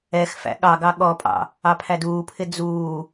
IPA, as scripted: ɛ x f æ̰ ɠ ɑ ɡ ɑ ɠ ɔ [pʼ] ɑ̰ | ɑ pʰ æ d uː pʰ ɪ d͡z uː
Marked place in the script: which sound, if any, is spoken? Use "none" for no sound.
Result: pʼ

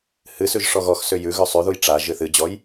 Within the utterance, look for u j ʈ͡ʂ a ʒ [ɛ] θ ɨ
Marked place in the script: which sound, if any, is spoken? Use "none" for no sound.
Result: ɨ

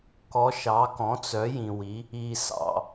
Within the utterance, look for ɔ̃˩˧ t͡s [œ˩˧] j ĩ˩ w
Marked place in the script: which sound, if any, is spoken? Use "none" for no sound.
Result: œ˩˧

